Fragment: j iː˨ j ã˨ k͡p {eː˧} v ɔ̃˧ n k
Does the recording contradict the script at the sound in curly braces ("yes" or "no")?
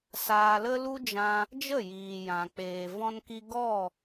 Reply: yes